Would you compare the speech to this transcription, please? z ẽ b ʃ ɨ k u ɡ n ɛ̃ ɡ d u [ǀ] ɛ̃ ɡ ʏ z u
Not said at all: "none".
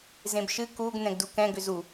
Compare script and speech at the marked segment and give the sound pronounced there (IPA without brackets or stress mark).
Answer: k